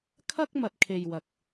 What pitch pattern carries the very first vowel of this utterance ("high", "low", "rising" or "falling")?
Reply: high